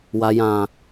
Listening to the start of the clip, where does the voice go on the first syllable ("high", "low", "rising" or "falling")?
low